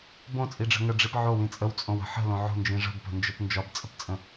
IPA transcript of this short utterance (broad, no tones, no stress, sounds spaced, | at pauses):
b õ t͡sʼ i ɖ͡ʐ ə̤ ŋ ə ɖ͡ʐ i p ʕ o w ĩ t͡sʼ ə w t͡sʼ õ w ə̤ ħ ə̤ l õ ʕ o̤ n d͡ʒ ĩ ʐ ə̤ b p ə̤ n d͡ʒ ə p n d͡ʒ ɒ b t͡sʼ ə̤ p t͡sʼ ə̃